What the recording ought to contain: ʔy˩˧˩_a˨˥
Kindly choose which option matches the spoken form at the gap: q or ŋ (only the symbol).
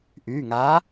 ŋ